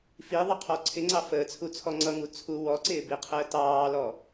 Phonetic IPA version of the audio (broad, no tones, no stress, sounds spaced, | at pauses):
f i ðˤ ə qʰ ɔ ǀʰ ɪ ŋ͡ǀ ɑ f əː t͡sʰ u t͡sʰ ɔ ŋ͡ǀ ʌ ŋ u t͡sʰ u w ɔ ǀ ɪː b i qʰ əː t ɑː l ɔ